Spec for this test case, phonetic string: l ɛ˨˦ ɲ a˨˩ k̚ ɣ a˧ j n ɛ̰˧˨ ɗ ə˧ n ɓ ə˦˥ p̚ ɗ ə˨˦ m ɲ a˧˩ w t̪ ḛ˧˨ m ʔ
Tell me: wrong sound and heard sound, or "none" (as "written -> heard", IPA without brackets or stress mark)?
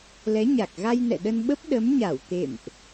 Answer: none